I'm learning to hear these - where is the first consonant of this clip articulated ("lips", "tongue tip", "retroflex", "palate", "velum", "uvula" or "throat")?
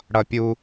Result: retroflex